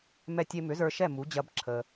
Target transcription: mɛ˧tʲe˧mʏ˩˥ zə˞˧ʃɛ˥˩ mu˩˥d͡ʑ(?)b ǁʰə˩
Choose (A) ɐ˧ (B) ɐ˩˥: A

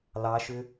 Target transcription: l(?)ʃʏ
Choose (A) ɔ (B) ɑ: B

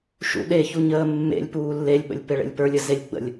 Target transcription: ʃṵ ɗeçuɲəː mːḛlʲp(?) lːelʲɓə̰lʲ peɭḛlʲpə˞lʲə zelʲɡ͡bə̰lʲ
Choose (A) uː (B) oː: A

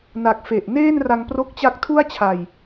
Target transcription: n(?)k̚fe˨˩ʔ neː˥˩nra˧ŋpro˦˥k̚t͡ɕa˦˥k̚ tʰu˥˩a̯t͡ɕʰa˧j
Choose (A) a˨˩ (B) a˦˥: A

